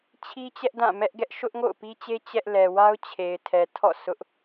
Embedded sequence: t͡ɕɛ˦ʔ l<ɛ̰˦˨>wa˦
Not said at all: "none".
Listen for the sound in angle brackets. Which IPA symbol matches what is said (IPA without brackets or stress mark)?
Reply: ɛ˨